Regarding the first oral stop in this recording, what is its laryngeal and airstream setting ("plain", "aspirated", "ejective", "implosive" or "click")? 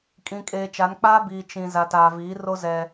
ejective